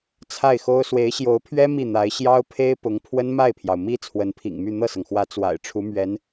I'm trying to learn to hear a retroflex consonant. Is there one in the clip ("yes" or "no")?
yes